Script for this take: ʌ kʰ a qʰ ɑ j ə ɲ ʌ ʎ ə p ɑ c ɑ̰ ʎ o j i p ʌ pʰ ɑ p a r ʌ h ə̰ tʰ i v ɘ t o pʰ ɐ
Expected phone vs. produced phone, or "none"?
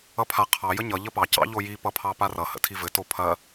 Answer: kʰ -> pʰ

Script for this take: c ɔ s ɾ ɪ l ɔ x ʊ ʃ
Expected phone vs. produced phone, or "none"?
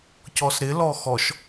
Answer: ʊ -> ɔ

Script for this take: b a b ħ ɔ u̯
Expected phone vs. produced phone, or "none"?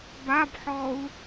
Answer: none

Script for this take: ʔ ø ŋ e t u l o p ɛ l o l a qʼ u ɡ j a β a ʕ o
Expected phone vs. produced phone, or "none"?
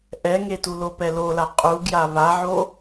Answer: ø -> ɛ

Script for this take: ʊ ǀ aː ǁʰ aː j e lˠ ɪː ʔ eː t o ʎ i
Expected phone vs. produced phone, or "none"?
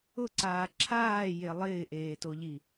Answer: none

